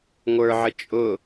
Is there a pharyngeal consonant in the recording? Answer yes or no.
yes